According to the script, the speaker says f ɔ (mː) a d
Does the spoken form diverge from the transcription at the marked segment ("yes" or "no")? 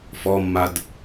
no